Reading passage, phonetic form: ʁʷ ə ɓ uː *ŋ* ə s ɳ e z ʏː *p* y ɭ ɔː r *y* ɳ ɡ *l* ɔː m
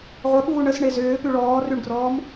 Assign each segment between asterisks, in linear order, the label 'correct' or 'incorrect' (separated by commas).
incorrect, correct, correct, incorrect